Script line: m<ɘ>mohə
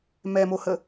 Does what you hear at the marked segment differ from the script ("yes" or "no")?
yes